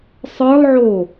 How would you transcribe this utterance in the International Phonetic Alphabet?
sˤ ə˞ lˠ ʕ o

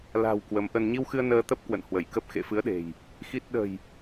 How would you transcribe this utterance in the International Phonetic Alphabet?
l a̤˨˩ w k w ə˨˦ m ʔ ə˧ n ɲ i˧ w x ɨ˧ ə̯ n əː˧ t̪ ə˦˥ p̚ k w ə̰˧˨ n h w ə˧˩ j k ə˦˥ p̚ x ḛ˧˨ f ɨ˨˦ ə̯ ɗ e̤˨˩ j | x i˦˥ t̚ ɗ ə̤˨˩ j

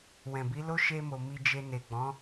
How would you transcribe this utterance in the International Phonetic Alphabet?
w ɛ̃˨ b i˨˦ l o˦ ʃ e˧ m o˧ m i˧ d͡ʒ e˧ n e˨ ɡ͡b ɔ̃˨˦

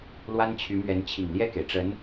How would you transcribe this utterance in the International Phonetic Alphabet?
l w a˥ n t͡ɕʰ y˧˥ m ɥ ɛ˧˥ n t͡ɕʰ i˨˩ ŋ l j ɛ˥˩ k e˩ ɪ̯ ʈ͡ʂ ə˧˥ n

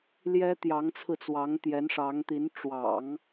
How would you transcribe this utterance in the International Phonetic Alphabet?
l j ɛ˥ t̪ j ɑ˧˥ ŋ t͡sʰ ɹ̩˧ t͡s w ɑ˧˥ ŋ t̪ j ɛ˧˥ n ʂ ɑ˧˥ ŋ t̪ i˧˥ n ʈ͡ʂ w ɑ̰˨˩˦ ŋ

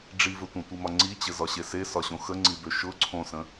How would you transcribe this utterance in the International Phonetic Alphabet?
ɖ͡ʐ i v ɘ tʷ ə̃ tʷ i m ɒ ŋ͡ǀ i t͡ɕ ɘ z ɒ ɕ e s e s ɒ ɕ õ x ə ŋ͡ǀ i b ø ʃ ʊ ǀʰ õ s ə̃

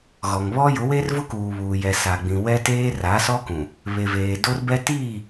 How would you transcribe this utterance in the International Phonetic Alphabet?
ɣ ɔ˨ ŋ β ɔ˦ j ʊ˨˦ w e˦ r v ʊ˦ k uː˨ β uː˨ j ɛ˨ s a˨ ɡ͡b ĩ˨ w ɛ˦ t eː˦ r a˨˦ s ɔ˦ k ũ˨ | β e˨ v eː˨ d o˦ r b ɛ˦ t iː˦˨

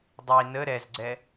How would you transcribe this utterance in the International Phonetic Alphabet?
dˤ i n ə ɾ ɛ z ɡ͡ǀ ɛ

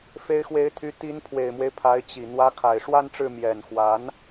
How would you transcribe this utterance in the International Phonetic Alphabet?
f e˧˥ ɪ̯ x w e˧˥ ɪ̯ t̪ʰ y˧˥ t̪ i˧˥ n pʰ w e˨˩ ɪ̯ m w e˦ ɪ̯ pʰ a˧˥ ɪ̯ t͡ɕ i˨˩ n̪ w ä˧˥ kʰ a˨˩ ɪ̯ ʂ w a˥ n ʈ͡ʂ ɻ̩˥˩ m j ɛ˨˩ n x w a˧˥ n

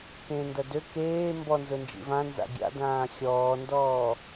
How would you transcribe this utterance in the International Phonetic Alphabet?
k ẽ n d ɐ d ø k eː m b ɔ n z ʊ n d͡ʒ ḭ v ã n z a̰ ɡʲ a̰ d ãː xʲ ɔː n d ɔː

